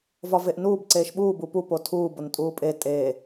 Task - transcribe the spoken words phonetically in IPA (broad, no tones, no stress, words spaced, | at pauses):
vɒveʔnuːb ǀeːʃɓuːbu pu potʰuː bontʼuːpʼe tʼeː